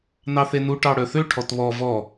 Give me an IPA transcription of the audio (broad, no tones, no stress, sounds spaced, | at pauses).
n ɑ θ e n u ʈ ɑ ɽ œ θ ø ʈʰ ɔ t β ɔ v ɔ